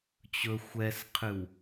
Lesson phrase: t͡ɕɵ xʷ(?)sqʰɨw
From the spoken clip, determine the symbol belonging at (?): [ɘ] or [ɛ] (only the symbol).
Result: ɛ